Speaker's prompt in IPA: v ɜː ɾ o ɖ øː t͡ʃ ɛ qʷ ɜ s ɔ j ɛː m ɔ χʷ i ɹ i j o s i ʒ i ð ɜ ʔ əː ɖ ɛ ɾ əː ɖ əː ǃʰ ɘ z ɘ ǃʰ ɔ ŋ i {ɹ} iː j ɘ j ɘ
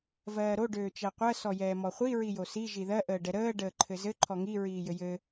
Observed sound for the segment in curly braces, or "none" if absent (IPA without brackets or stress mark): ɹ